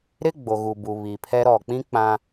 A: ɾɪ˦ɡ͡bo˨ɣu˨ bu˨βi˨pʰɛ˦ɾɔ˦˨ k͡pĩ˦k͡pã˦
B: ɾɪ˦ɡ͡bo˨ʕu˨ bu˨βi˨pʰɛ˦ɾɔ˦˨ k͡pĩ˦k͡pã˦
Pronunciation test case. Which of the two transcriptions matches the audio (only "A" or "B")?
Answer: A